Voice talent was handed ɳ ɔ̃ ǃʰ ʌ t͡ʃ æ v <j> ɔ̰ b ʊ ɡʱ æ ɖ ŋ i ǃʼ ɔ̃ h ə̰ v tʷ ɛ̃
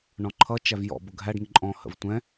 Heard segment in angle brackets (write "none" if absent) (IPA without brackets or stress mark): j